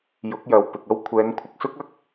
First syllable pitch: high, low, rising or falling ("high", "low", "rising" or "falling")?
rising